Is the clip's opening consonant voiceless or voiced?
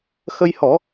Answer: voiceless